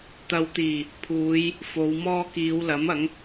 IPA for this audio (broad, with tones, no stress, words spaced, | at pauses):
t̪ɐ˨wt̪iː˨˩ | pʰuː˨˧j | fo˨˧wmɔː˥ kiː˨˧wlɐ˨˥m ɐ˨˥ŋ